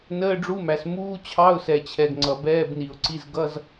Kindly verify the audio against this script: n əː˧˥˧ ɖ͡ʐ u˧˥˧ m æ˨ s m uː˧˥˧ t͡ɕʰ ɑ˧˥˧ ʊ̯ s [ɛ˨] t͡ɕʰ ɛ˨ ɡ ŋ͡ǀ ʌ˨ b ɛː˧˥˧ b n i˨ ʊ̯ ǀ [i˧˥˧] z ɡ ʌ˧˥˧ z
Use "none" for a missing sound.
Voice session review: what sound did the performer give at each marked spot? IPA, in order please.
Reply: ɛ˨, i˧˥˧

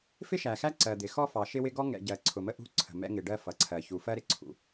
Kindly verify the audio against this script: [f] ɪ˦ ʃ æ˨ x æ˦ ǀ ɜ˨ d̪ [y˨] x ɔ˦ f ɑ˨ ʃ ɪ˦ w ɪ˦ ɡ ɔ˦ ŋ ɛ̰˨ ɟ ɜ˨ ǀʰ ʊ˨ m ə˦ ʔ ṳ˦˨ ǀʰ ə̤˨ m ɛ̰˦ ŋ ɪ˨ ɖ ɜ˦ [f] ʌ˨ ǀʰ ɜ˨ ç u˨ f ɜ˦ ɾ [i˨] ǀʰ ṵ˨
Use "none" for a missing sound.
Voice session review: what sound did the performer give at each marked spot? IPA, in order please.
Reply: f, ɪ˨, f, ɪ˨

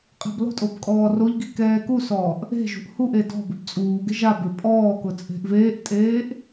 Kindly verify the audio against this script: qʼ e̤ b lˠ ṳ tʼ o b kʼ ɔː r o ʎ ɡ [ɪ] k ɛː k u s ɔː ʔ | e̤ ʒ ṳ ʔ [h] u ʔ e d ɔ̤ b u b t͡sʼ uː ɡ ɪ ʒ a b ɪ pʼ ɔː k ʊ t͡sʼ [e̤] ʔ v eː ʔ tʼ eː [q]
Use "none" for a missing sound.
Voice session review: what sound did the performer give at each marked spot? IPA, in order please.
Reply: i, h, e̤, ʔ

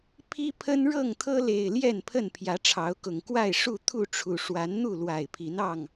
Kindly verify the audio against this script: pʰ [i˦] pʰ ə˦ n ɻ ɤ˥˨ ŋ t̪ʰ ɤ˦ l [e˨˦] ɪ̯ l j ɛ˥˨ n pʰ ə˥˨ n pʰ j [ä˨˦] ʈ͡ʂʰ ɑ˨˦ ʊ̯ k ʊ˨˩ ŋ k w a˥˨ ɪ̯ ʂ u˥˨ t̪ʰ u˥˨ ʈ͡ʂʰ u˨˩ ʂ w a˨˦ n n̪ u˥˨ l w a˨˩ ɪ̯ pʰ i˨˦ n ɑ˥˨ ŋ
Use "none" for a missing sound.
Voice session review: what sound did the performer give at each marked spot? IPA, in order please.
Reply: i˦, e˨˩, ä˨˦

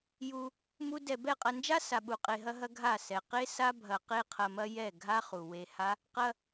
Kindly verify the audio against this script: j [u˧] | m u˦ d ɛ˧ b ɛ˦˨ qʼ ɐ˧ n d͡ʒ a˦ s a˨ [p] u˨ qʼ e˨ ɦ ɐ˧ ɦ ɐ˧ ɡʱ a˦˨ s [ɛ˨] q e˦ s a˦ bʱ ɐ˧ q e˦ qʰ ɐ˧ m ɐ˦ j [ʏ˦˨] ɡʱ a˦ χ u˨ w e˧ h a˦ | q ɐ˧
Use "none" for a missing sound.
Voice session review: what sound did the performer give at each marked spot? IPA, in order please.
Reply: u˧, ɓ, ɛ˨, ɛ˦˨

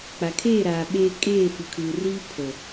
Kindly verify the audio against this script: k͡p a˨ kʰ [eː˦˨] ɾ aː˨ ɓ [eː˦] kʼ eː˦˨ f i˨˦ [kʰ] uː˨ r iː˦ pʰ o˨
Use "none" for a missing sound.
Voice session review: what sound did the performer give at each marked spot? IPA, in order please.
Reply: eː˦˨, eː˦, kʰ

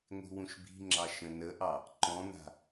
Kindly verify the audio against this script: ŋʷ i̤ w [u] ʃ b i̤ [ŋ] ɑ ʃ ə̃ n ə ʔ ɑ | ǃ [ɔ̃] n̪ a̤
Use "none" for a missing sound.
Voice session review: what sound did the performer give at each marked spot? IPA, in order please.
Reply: ũ, ŋ͡ǁ, ɔ̃

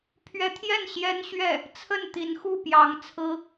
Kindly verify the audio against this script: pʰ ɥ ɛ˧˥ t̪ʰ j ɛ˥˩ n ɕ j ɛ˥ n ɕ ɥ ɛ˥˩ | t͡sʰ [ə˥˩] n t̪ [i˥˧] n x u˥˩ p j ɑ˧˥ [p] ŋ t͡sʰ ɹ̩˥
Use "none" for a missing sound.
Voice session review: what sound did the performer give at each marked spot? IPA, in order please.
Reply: ə˥˩, i˧˥, none

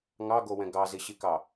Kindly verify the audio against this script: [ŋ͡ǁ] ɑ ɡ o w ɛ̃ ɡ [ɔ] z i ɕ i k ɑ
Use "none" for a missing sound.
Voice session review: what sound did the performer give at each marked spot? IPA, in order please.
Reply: ŋ, ɑ

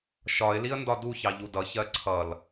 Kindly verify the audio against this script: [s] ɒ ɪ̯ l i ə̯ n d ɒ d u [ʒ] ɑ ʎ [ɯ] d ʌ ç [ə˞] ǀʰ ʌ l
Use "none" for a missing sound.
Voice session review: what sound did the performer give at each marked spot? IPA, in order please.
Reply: ʃ, ç, u, ɜ

